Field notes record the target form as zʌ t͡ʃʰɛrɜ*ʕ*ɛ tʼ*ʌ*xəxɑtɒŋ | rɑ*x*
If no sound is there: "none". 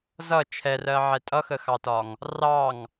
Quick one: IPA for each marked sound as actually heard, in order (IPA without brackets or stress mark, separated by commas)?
ʕ, ʌ, ŋ